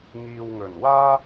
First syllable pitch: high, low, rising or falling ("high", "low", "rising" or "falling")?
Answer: low